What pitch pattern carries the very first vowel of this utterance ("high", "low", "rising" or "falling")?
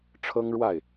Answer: high